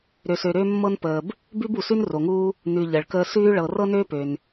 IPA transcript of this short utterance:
ɾø˨sø˨ ɾø˥mːɤ˥npəː˨b | bʉ˥bu˩sʉ˥n ro˩ŋuː˦ | nʉ˨ ʎə˩ɭkəː˦ sʉː˥ɭɤ˨ rɤ˥nøː˥pø˩n

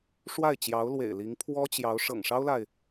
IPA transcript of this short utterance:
ʂwa˥˩ɪ̯ t͡ɕjɑ˧˥ʊ̯lwḛ˨˩ɪ̯li˧˥ŋ pʰwɔ˥t͡ɕjɑ˧˥ʊ̯ ʂɤ̰˨˩ŋʂɑ˥ʊ̯la˨ɪ̯

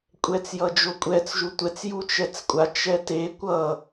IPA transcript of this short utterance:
kʷʼɛt͡sjʌd͡ʒokʷʼɛt͡s ʒutʷɛt͡s jut͡ʃɛt͡skʷʼa t͡ʃɛte kʷʌ

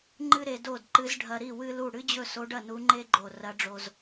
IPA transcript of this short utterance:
ŋ͡ǃɨ˥ɾe˧do˥˩dǃɨ˧˥z ɖʱɐ˧ɾi˥˩ wɨ˥lu˥˩ ɽɨ˥d͡ʑɵ˥˩so˧˥ɖɐ˥˩ nu˧˥ŋ͡ǃe˥ɡ͡ǃo˧˩ rɐ˧˥ɖ͡ʐo˧z

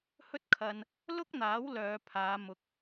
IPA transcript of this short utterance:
hɵ˥t̚kʰɐ˧n | lʊ˥k̚n̪aː˨˥w lœː˨˧pʰaː˨˧ mʊ˨k̚

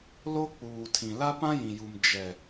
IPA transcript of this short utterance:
lo˦k͡puː˨tʰĩ˨ la˦pã˦jĩ˨ju˨m d͡ʒɛ˨

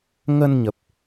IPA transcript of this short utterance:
ŋə˧nɲə˨˩p̚

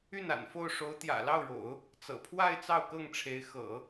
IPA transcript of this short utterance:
y˥˩na̰˨˩nfo˥˩ʊ̯ ʂo˧˥ʊ̯t̪jä̰˨˩lɑ˥˩ʊ̯ɻo̰˨˩˦ʊ̯ | t͡sɤ̰˨˩pʰwa˥˧ɪ̯ t͡sɑ˥˧ʊ̯kɤ˥˩ŋʈ͡ʂʰe˧˥ɪ̯ xɤ̰˨˩˦

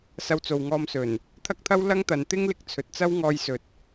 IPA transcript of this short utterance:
sɐ˧wt͡so˨wŋɔː˧msɵ˨˩n | t̪ʰɐ˥k̚t̪ʰɐ˥w lɐ˥ŋt̪ɐ˨n t̪ɪ˥ŋlɪ˨˥k̚t͡sʰɵ˨t̚t͡sɐ˥w ŋɔː˥jsɵ˧t̚

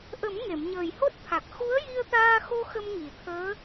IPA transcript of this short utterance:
ʔə˨˩˦m ŋe˨˩˨mɲəː˨˩jho˦˥t̚t̪ʰa˨˩k̚ xu˧˥ə̯ji˧ə̯t̪aː˧xo˧ xə˧mŋi˨˩˨t̪ʰəː˧˥

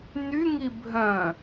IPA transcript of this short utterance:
n̪yŋi bʱœ̃

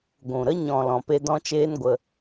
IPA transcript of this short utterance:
ɡʷũ˨ɾə˦ ɲɔ̃˨ lɔ̃˨pe˧ dɔ̃˦t͡ʃeː˦nɡʷə˧

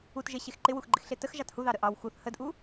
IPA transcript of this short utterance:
utʒeɕex ǃɪwuxɡ͡ǃɪxɬe təxʒɑt huðɑɾə ʔɑw xuθ hədʔu

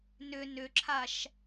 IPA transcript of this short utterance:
nʏ nʏǁʰaʃ

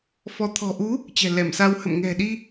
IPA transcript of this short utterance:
fɔ˨˦ t̪ʰɔ̤˨˩ʔu˨˦ | t͡ɕɛ̤˨˩lɛ˧˩msa˧w hə̰˧˨mŋɛ̤˨˩ ɗi˧

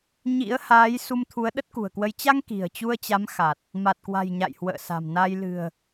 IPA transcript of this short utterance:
ɲḭ˧˥ə̯haː˨˦j su˧mt̪ʰu˨˦ə̯ ɗə˦˥t̚kṳ˨˩ə̯kwə˧j t͡ɕa˧ŋ ki̤˨˩ə̯t͡ɕu˧ə̯t͡ɕa˨˦m xa˨˩t̚ | ma˨˩t̚kwa̤˨˩j ɲa̰˧˨jhwə̰ː˧˨sa̤˨˩mna˧j lɨ̤˨˩ə̯

